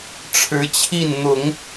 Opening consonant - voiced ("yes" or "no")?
no